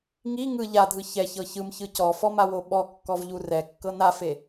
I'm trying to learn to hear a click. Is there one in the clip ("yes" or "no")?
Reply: no